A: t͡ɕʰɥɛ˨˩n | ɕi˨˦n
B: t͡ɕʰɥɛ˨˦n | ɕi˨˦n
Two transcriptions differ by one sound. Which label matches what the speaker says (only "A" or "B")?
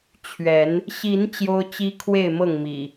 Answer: B